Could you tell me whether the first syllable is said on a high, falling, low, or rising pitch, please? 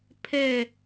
falling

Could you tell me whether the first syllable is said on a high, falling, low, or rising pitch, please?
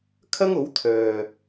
high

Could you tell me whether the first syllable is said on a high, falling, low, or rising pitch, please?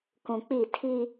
low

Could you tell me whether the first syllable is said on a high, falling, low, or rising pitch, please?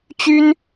high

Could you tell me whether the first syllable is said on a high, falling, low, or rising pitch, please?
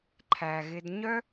low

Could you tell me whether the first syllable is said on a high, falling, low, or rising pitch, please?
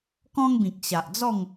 high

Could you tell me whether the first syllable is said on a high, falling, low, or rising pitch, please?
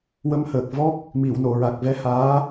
rising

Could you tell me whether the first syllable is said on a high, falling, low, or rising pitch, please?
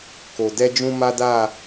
low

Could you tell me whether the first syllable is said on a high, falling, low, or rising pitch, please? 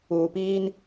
low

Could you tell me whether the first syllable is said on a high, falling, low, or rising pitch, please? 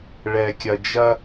low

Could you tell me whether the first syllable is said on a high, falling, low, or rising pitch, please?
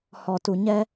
low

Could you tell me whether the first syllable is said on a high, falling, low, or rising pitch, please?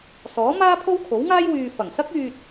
rising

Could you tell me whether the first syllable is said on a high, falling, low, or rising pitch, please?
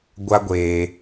high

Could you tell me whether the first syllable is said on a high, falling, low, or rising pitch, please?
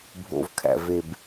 low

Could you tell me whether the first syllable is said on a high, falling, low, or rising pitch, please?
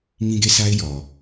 high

